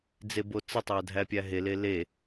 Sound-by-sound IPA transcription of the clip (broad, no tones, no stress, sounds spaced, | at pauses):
d͡z e b o t͡s ə tˤ æ dʱ æ pʲ æ ɦ e l e l e